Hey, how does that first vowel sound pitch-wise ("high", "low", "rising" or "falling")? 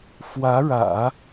rising